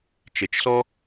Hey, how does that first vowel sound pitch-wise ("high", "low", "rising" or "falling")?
low